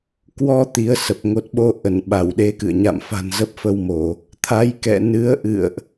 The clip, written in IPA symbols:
k w ɔ˧ t̪ i˨˦ ə̯ s ə˨˩ p̚ ŋ o˨˩ t̚ ɓ o˧ ʔ ə˧˩ n ɓ a˧˩ w ɗ e˨˦ k ɨ̰˧˨ ə̯ ɲ a̰˧˨ m f a̤˨˩ n z ə˦˥ p̚ f ə˧ w m o˧˩˨ | t̪ʰ a˨˦ j k ɛ̰˧˨ n ɨ˨˦ ə̯ ʔ ɨ̰˧˨ ə̯ ʔ

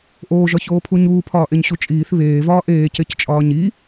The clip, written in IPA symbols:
ʔ oː ʒ ɒ ç oː pʰ u ɲ uː pʰ ɒː ʔ e ɲ ɕ u t͡ʃʼ iː θ β eː v ɒː ʔ eː c e c t͡ʃʼ ɒː ɲ i

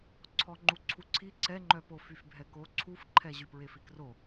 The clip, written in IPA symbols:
ǀʰ ɔ ŋ͡ǃ u ǀʰ u ǀʰ i ǀ ɛ ŋ͡ǃ œ p o f y f bʱ ɛ k o ǀʰ u f ǃʰ ɛ ʑ y p ɹ e f i k r o

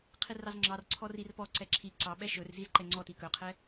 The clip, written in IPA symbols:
qʰ i r ɑ z ŋ͡ǁ ɑ r ǀʰ ɔ r i r p ɔ ǀ ɛ ǁʰ i ǀ ɑ ɓ ɛ ʃ ɵ r z i z ǃ ɛ ŋ͡ǀ ɔ t i k ɵ qʰ ɛ

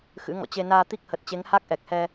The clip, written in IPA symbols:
x ɨ̰˧˥ ŋ ɔ̰˧˨ t͡ɕ e˧ n aː˧ t̪ i˦˥ k̚ h ə˨˩ t̚ t͡ɕ e˨˦ ŋ h a˦˥ k̚ ʔ ɛ˨˩ k̚ h ɛ˧

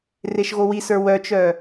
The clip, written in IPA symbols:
r e ʃ ɣ o w i s ə˞ w œ t͡ʃ œ

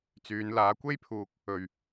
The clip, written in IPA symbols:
t͡s yː˨˧ n l aː˨˧ kʷ e˥ j pʰ uː˧ k̚ | ɵ˨ ɥ

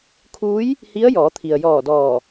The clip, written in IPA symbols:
kʰ uː˧˥ j | h i˧˥ ə̯ j ɔː˩˧ t̪ʰ i˩ ə̯ j ɔː˧˩ d ɔː˧˩

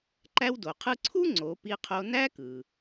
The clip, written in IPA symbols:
ǃ æ˧ w d o˩ qʰ ɯ˧ ǀʰ u˥ ŋ͡ǀ o˩˧ p i˧ qʰ o˧ n æ˥ k ɯ˩

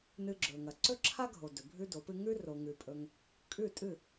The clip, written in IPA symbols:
n ɨ˧ ɡ͡ǁ ɵ˨ ŋ ɐ˨ ǀ ɵ˦ ǁʰ a˦ ɡʱ o˨ d ɵ˨ bʱ ʉ˦ d o˨˦ p ɨ˦ ŋ ʉ˦ r o˧ ŋ ʉ˧ pʼ ɵ˦ ŋ | kʼ ʉ˦˨ tʼ ɨ˦˨

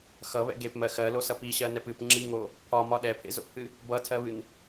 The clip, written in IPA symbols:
x ʌ β ɛ̰ ɡ e p m ɜ x ɜ l o s ʌ p i ɕ ɜ n ɛ p ɨ p ŋ͡ǁ i ŋ o | pʰ ɒ m ɒ ɗ ɛ pʰ ḛ z o̰ pʰ ɨ | b ʌ tʰ ɜ β ɨ n

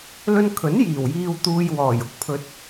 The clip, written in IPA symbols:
l ɵ˧ n kʰ ɵ˨˥ n j iː˨˩ w j iː˨ w t̪ uː˨ j w ɔː˨˩ j ʊ˥ k̚ pʰ ɵ˧ t̚

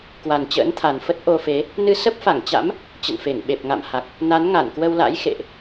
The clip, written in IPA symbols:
k w a˨˩ n t͡ɕ ə̰ː˧˥ n t̪ʰ a˨˩ n f ə˦˥ t̚ ʔ o˧ f e˨˦ | n ɨ˧ s ə˦˥ p̚ f a˧˩ ŋ t͡ɕ a̰˧˥ m | t͡ɕ ə̰˧˨ n f e˧˩ ŋ ɓ e˨˩ p̚ ŋ a̰˧˨ m h a˨˩ k̚ | n a˨˦ n ŋ a˧˩ n k w ə˧ w l a̰˧˥ j x ḛ˧˨ ʔ

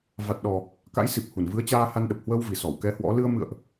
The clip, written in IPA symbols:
v a˨˩ t̚ ɗ ɔ˨˩ | k a̰˧˥ j s i˨˩ p̚ h u˧˩ n v ɨ˨˦ ə̯ t͡ɕ aː˧ h a˧ n ɗ ə˨˩ p̚ h w ə˧ w v i˨˩ s ɔ˧˩ w k ɛ˧ h w ɔ̰˧˥ l ɨ˧ ə̯ m ɨ̰˧˨ ə̯ ʔ

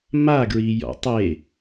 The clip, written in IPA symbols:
m a ɡ ɹ i j ɔ̰ tˤ e

